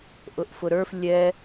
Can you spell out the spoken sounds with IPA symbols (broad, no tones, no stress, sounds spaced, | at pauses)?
ʔ ʊ ʔ f ʊ ɾ ə˞ f lʲ ɛ